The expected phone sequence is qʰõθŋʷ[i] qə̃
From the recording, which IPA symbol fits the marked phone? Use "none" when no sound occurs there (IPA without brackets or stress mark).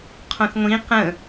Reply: ĩ